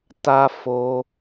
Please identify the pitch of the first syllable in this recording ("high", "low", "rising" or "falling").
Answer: high